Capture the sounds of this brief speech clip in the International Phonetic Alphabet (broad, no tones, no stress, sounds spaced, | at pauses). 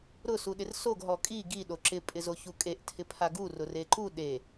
ɾ ʊ s u ɗ ɪ r s o ɡ ɦ ɔ kʼ i ɡ i ɗ o ǁ ɪ pʼ ɪ z o ç u kʼ e ʔ tʰ ɪ pʰ a ɡ u r ʊ r e ǃ u ɗ e